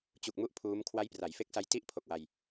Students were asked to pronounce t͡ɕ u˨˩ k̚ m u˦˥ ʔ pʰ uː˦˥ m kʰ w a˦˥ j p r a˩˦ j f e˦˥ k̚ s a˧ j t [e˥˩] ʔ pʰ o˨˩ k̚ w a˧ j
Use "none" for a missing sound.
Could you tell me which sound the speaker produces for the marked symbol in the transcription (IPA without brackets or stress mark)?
i˥˩